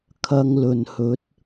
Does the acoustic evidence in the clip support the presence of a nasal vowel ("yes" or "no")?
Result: no